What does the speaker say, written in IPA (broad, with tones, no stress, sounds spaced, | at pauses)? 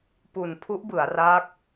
p u˨˩ n pʰ u˦˥ ʔ b ɯ˩˦ a̯ r aː˦˥ k̚